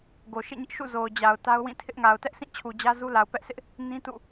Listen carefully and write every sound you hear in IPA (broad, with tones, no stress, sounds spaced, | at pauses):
ɡ o˨ ʃ ḛ˦˨ ɲ ɪ˦ ʔ ʃ ṵ˦˨ z o˨ ʊ̯ d͡ʑ a˨ ʊ̯ t a˦ ʊ̯ w ĩ˦˨ tʰ ɪ˦ ʔ ŋ a˨ ʊ̯ t ɛ˦ ʔ sʰ ĩ˦˨ t͡ɕʰ u˨ d͡ʑ ä˦ z u˦ l a˨ ʊ̯ p ɛ˦ ʔ sʰ ɪ˦ ʔ | n ĩ˦ t ṵ˦˨